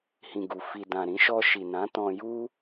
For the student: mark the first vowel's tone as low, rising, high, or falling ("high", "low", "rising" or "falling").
low